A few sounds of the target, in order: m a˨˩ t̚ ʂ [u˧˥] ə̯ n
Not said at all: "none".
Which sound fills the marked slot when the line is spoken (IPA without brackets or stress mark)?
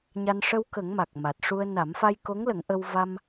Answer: u˧